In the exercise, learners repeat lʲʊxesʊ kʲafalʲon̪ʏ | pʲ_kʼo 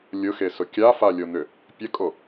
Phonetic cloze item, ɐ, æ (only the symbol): ɐ